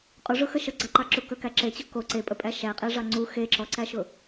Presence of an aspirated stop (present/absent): absent